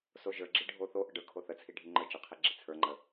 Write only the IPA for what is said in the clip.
s o ʒ ə˞ ɡ͡ǁ i ɖʱ o θ o ʔ ə ɖ ə˞ kʰ o θ ə t͡sʰ i ɖʱ i ŋ͡ǃ ə˞ t͡ʃ ə qʰ i ɡ͡ǁ i t͡sʰ ə˞ ŋ͡ǃ ə

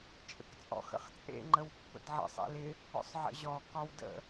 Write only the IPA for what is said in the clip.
t͡ʃʼ ə̰ k t͡sʼ ɔ̰ x ə̰ χ t͡sʼ ḛ ŋ͡ǃ ə w pː ə̰ d ʕ ə̰ sˤ ḛ l ɪ | ɔ̰ sˤ ʕ ə̰ ʑ ɔ k ɒ w d ə̰

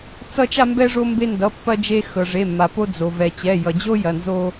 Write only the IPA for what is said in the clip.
t͡s ʌ˥ t͡ʃ a˥ m b ɛ˥ ʐ o˥ m b e˥ n d ʌ˧˥˧ pː ɐ˥ d͡ʒ e˥ x ɤ˧ ʐ e˧˥˧ mː a˧ p o˥ d͡z o˧ v ɛ˧ t͡ɕ ɛ˧˥˧ j ʌ˧ d͡ʑ o˥ j ɐ˧˥˧ n z o˥

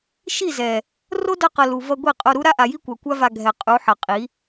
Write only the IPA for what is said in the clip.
ʃ i˦˨ z ɛ˨ | r o˦ d ʌ˧ q ʌ˨ l u˨ v ʌ˧ ɡʷ i˦˨ qʼ o˧ ɾ u˦ ɾ a˦ ʔ a˨ j i˦ kʷ a˨ kʷ a˦ v a˧ ɡʱ ɛ˨ qʼ u˨˦ ħ ʌ˨ qʼ i˨˦

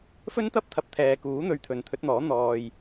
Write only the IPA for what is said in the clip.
f ɵ˥ n t̪ ɐ˥ p̚ t̪ʰ ɐ˧ p̚ t̪ʰ ɛː˨ k uː˨˥ n̪ ɵ˧ ɥ t̪ʰ ɵ˨ n t̪ʰ ɵ˨˥ t̚ n̪ ɔː˨˥ n̪ ɔː˨ j

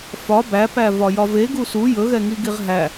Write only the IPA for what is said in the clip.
f ɒ b æ p æ v ɒ j ɒ v e ɡ u s u j ɵ ɣ ɛ ŋ i ɡ i ʁ ɦ æ

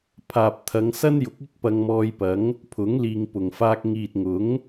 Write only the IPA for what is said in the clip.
pʰ aː˨ p̚ t̪ʰ ɐ˨˧ ŋ s ɐ˥ n j ʊ˨˥ k̚ ɪ˥ k̚ p ɐ˧ ŋ m ɔː˧ j p ɐ˨˥ ŋ | pʰ ʊ˨˥ ŋ l iː˨ ŋ p ʊ˨˩ ŋ f aː˧ k̚ ŋ iː˨ t̚ ŋ ʊ˨˥ ŋ

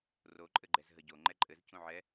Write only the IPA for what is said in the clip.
r o ǃʼ ɘ ɡ͡ǃ ɛ z ɦ ə ɟ o ŋ͡ǃ ɛ ǃʼ ɘ z c ũ ʕ ɛ

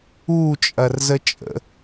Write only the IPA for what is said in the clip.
u t͡ʃʼ ɐ r z ə t͡ʃʼ ə̰

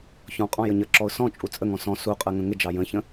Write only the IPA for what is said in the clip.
ç ɔ̃ qʼ ɔ̃ j ə ɲ ə ǁ ɔ ʊ̯ s ɔ̃ t͡ʃʼ u t͡sʼ ə ŋ ɔ̃ s ɔ̃ s u qʼ ɜ ŋ ə̃ ŋ ɪ d͡ʒ ɑ j ə̃ ç ə̃

